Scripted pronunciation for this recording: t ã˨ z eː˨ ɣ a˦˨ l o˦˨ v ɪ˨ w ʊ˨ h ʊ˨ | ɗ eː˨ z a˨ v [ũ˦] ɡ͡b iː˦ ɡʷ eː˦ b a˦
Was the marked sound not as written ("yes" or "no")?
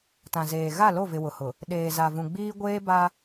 yes